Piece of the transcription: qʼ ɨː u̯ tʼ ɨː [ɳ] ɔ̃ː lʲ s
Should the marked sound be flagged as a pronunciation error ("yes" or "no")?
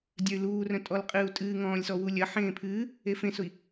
yes